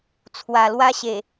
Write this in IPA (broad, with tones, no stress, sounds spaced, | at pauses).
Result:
t͡sʰ w a˨˩ l w a˦ ɕ e˨˩